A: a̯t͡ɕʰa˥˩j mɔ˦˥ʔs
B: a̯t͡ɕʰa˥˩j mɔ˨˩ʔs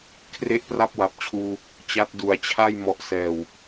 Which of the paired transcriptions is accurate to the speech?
B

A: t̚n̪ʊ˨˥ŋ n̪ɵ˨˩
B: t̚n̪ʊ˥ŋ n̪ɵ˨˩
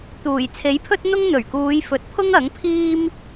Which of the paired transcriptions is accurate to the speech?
B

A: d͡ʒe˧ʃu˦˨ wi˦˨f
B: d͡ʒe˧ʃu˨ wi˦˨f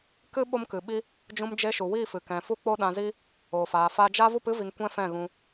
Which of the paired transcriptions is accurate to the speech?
B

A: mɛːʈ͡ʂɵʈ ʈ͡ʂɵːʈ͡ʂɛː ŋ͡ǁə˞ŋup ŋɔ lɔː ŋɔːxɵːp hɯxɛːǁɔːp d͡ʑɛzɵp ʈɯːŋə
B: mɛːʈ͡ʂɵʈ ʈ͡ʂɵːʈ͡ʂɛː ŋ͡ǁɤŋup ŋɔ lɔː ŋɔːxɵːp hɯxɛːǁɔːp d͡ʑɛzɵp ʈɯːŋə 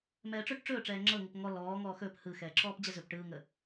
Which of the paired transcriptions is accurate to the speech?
B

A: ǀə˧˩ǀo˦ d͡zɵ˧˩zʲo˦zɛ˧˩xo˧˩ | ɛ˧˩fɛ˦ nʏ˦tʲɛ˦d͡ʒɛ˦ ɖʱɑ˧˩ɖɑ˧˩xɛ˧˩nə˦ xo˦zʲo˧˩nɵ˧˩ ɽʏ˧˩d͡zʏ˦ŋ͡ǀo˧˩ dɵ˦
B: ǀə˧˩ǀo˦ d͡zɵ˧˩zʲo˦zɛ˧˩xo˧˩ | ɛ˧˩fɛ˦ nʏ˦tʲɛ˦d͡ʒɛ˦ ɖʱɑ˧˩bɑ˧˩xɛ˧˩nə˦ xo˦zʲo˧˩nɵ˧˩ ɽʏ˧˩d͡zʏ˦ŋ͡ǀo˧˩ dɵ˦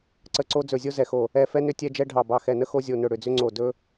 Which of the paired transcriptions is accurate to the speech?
B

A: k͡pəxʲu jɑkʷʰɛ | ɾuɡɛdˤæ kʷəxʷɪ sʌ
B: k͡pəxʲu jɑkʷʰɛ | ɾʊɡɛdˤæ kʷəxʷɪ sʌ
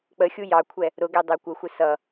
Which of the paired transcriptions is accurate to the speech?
B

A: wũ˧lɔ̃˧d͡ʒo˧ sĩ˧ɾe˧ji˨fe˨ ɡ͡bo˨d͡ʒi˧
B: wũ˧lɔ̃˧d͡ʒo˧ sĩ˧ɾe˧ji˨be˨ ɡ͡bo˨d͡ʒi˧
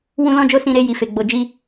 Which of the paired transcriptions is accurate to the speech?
A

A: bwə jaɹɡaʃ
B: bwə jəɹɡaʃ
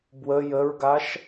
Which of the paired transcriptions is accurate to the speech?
B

